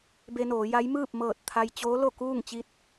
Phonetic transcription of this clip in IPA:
b e˧ n oː˩˧ j a˧˥ j m ɯː˥˨ p̚ m ɤː˧˩ t̚ t̪ʰ a˧ j t͡ɕ oː˧˥ l o˥˨ k uː˥˨ ŋ t͡ɕ i˧ t̚

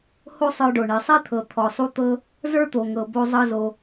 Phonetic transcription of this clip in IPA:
h o˥ sˤ ə˞˧ ɖ o˩ ɳ e˩ sˤ i˥ t̪ʰ ɤ˩ t̪ʰ ɔ˩ sˤ u˧ t̪ ɤ˧ | z ə˞˥ t̪ o˩ ŋ ɤ˩ b o˧ zˤ ɤ˧ z o˩

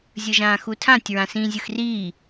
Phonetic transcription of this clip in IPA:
zʲ ɯ ʒ ãː x u tʰ ã tʲ ɹ ã s ĩː zʲ ɯ x r iː

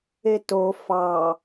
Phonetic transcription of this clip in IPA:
e t o f ɑ

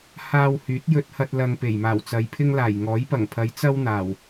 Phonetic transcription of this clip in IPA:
h aː˧ w h yː˨˥ t̚ j ɵ˥ t̚ h ɐ˥ t̚ l ɐ˧ ŋ p e˨˩ j m aː˨˩ w t͡s ɐ˨ j pʰ ɪ˥ ŋ l aː˨˩ j ŋ ɔː˨˥ j p ɐ˨˩ ŋ pʰ ɐ˨˧ j t͡s ɐ˥ w n̪ aː˨˩ w

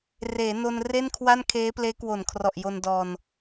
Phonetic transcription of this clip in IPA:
r eː˩˦ n o˧ n r e˥˩ n kʰ w a˥˩ n kʰ eː˦˥ p l eː˦˥ k w o˨˩ n kʰ r ɔ˨˩ ʔ j o˧ n d ɔː˧ n

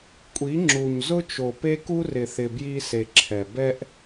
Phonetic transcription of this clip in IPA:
kʷʼ i˨˦ ŋ͡ǁ u˨ ɲ z ʊ˦ t͡ʃ o˨ p e˦ k u˦ r ɪ˨ θ ɪ˨ b j i˦ s e˨ ǁʰ ɛ˨ b ɛ˦ ʔ

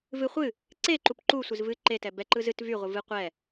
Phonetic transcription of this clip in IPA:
v ɨ χʷ ɨ | ǀ e ǃ u p ǃ u sʷ ɨ z v ɨ ǃ e t ɛ b ɛ ǃ ɯ z ɨ t v y ʁʷ ɨ v ɨ qʷ ɛ

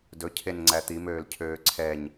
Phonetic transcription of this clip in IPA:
d ɵ cʰ e n ŋ͡ǀ æ t̪ i m øː l cʰ øː ǀʰ ɛ ɲ

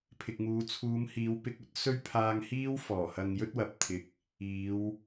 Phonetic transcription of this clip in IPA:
pʰ ɪ˨ k̚ ŋ uː˨˧ t͡sʰ uː˨˧ m h iː˨˧ w p ɪ˧ k̚ ɵ˥ t̚ s ɵ˥ ɥ pʰ aː˧ ŋ h iː˥ w f ɔː˨˩ h ɐ˧ ŋ j ɵ˥ t̚ w ɐ˨ p̚ t̪ʰ ɪ˧ k̚ | iː˨˧ w

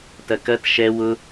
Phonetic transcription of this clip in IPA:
t ɐ k ɐ t ʃ ɛ w ʊ

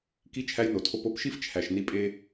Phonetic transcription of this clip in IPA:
k i˧ t͡ʃʰ æ˧ j n o˩ tʰ o˧ p o˧ p ʃ i˧ f t͡ʃʰ æ˩ ʃ n i˧ pʼ e˧

